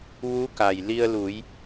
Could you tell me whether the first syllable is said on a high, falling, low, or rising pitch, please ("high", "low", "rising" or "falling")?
rising